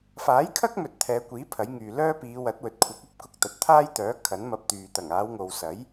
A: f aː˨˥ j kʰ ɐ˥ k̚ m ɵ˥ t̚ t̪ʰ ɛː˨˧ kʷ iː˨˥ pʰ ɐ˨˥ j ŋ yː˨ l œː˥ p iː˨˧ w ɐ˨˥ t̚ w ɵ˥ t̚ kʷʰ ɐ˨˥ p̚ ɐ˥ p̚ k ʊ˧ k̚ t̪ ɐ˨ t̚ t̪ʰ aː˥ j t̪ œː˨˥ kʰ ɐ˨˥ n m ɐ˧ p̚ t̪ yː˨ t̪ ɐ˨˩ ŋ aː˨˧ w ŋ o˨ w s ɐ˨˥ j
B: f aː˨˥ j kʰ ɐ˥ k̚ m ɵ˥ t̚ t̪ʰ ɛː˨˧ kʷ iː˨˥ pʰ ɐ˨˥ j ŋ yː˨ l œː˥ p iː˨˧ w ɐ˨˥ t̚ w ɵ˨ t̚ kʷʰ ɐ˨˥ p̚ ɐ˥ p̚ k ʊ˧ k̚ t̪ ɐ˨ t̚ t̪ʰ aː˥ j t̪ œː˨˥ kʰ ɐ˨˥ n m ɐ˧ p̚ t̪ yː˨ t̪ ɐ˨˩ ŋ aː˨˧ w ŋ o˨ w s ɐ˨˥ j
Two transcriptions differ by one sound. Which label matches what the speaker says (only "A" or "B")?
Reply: B